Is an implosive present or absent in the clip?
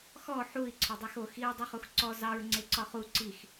absent